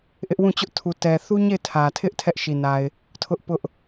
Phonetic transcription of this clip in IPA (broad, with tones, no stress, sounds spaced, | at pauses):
ʔ ɪ˦ ʔ w ũ˦˨ t͡ɕ ʊ˦ ʔ tʰ u˨ t ɛ˨ θ u˦ ɲ e˦˨ ɪ̯ tʰ ä˨ tʰ ɪ˦ ʔ tʰ ɛ˦ ʔ ʃ i˨ n a˨ ɪ̯ | tʰ ʊ˦ ʔ p ʊ˦ ʔ